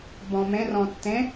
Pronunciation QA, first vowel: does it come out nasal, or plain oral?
nasal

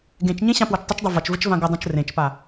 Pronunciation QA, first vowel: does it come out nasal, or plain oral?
nasal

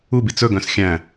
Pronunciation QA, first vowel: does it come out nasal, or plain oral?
oral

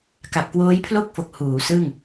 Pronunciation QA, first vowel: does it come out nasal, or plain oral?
oral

